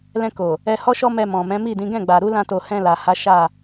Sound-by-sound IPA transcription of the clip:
l ɛ̃˧ k o˨ | ɛ˧ h ɔ˦ ʃ ɔ˦ m ɛ˧ m ɔ̃˨ m ɛ̃˨˦ m i˦˨ d ĩ˨˦ ɡ ɛ̃˦˨ ɡ͡b a˨ ɾ u˨˦ l ã˦ t o˧ h ɛ̃˧ l a˨ h a˨˦ ʃ a˦˨

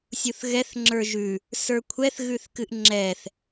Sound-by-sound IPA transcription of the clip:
sʲ u θ ɣ ɛ θ ŋ͡ǁ ə˞ ʒ ʉ | s ə˞ kʷʰ ɛ θ ɣ ʉ θ k ɨ ʔ ŋ͡ǁ ɛ θ

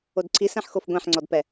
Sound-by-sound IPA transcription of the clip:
o d ǀʰ i s ɛ̃ ħ x o f ɡʷ ɛ̃ ħ ŋ͡ǀ ɔ d p ɛ

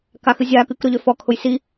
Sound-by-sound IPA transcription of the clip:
k a x ɨ zʲ a k ɨ k ɾ ʊ ʎ ø f ɔ kʰ ʊ j s i

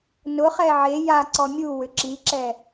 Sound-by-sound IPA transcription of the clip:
n ʊ χ ɛ ʕ e j a ǀ ɔ mʲ u w ʏ ǁ i ǁ ɛ

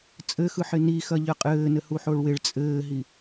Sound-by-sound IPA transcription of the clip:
t͡sʼ ɘ x ɯ ħ ɪ n i x ɐ ʎ ə qʼ ɘː n ɘ h u ħ o ɭ w ɪ ɭ t͡sʼ ɘː ɦ i

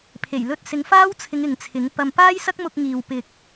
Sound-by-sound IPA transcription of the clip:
pʰ e˨˩ j l ɵ˧ t̚ s ɪ˨˧ ŋ f aː˥ w t͡sʰ ɪ˨˧ ŋ ɪ˨ ŋ t͡sʰ ɪ˨˥ ŋ p ɐ˧ m p aː˥ j s ɐ˥ k̚ m ʊ˧ k̚ ŋ iː˨ w p ɪ˨ k̚

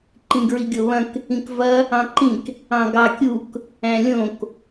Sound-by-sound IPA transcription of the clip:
ǃ ĩ ɡ ɹ i ɡʲ o β ɐ̃ k | ĩ k v ɐ | ɑ̃ ǃ ĩ k | ɑ̃ ɡ ɑ kʲ u k | æ̃ lʲ õ k

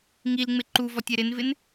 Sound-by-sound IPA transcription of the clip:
ŋ i l ŋ͡m ɪ ǃ u v ɔ tʲ ɛ ɾ ɪ n v ɪ n

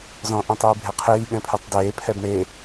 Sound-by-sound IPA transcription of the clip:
z ɔ̃ ʔ ɛ̃ tˤ iː bʱ e qʰ iː ɠ ɛ̃ pʰ ɨ tˤ d eː pʰ ɛ b ɳ e

